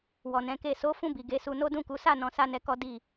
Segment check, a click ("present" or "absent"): absent